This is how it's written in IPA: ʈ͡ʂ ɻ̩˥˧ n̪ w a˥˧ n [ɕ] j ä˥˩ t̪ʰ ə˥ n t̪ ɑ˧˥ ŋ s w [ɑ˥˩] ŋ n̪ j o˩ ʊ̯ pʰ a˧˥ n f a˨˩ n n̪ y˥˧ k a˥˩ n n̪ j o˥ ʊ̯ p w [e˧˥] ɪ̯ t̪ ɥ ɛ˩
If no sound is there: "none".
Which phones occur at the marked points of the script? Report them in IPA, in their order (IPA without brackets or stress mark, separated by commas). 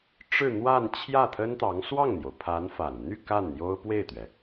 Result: t͡ɕʰ, ɑ˥˩, e˥˩